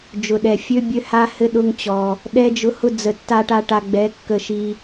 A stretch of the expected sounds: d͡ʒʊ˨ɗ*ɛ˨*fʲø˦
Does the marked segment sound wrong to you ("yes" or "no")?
no